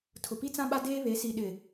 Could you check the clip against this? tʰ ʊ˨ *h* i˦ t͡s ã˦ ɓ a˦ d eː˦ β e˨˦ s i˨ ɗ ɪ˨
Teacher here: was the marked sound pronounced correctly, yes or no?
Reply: no